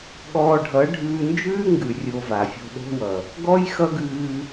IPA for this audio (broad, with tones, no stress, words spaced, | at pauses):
ɠɔː˧ɖʱʌ˨˦ ɖʱʉː˧nd͡ʒʉː˦ŋɡʉ˨ rʲo˧va˨fʲo̤˧ ɗo̤˦wʌ˨ | ɡɔ˦jxʌ˦ɡʉː˧